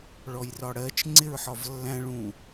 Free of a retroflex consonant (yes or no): no